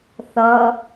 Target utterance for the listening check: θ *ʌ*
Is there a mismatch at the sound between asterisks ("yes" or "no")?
no